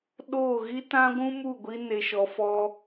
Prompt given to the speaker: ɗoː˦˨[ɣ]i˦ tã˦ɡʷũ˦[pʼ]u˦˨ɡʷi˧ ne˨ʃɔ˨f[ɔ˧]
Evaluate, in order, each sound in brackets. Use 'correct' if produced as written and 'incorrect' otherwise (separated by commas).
correct, incorrect, correct